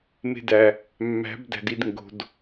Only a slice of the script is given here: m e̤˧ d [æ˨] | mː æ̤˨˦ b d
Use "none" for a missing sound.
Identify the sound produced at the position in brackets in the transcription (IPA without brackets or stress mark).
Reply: æ˨